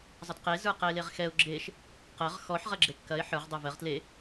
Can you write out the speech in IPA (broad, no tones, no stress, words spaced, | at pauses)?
zˤɐtqe zə˞qɛɪ̯leʁxɛʊ̯ ɡ͡ǁeʃ | qɜʁ xɔħ ʁɐɡ͡ǁekːɐɪ̯ ħə˞ʁ dˤə˞vɜʁ tle